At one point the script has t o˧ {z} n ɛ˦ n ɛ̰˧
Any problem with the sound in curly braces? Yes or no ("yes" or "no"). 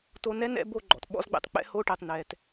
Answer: yes